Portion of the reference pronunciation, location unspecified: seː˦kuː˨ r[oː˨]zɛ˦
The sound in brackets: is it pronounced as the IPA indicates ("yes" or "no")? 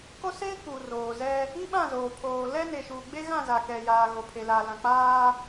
yes